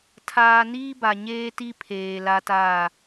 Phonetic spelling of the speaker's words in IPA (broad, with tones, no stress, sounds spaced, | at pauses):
tʰ aː˨ n iː˦ b a˨ ɲ eː˦ t i˦ pʰ eː˨ l a˦ t aː˦˨